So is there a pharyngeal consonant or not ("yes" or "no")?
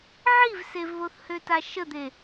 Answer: yes